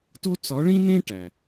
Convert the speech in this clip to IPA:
t o˥ t͡s ɒ˧˥ ɭ ĩ˥ n ẽ˥ ʈ æ˩

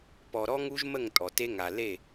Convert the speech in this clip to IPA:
p ɔ˨ ɾ ɔ˦ ŋ u˦ ʒ m ə˦˨ ŋ tʼ ɔ˨ t e˦ ŋ a˨ l e˦˨

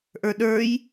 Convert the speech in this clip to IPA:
ʔ ə˞ ɗ ə˞ j

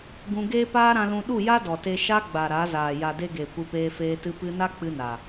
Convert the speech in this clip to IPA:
ɡ ũ˧ ɡ eː˦ p aː˦ ɾ ã˧ l ũ˧ ɗ u˦˨ j a˦ d ɔ˨ t e˧ ʃ a˦ ɡ͡b a˨ ɾ a˨˦ z aː˨ j a˨ d e˧ ɡ eː˨ kʷ ɨ˧ p eː˧ f eː˧ t ɨ˧ p ɨ˧ n a˦ k͡p ɨ˧ n a˨

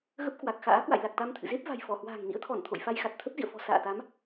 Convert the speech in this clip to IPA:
ɣ ə˦˥ p̚ k w a˨˩ k̚ x a̰ː˧˥ k w a̰˧˨ j l a˨˩ k̚ t̪ a˧ m t̪ʰ ɨ̰˧˨ z e˦˥ p̚ v a̤˨˩ j f ɔ˧˩ h w a̤ː˨˩ ŋ n ḭ˧˥ ə̯ t̪ʰ ɔ˧˩ n t̪ʰ o̰˧˨ j f a˧ j x a˨˩ t̚ t̪ʰ ə˦˥ p̚ z ḭ˧˨ ə̯ f ɔ̤˨˩ s a̰ː˧˨ t̪ a˨˦ m

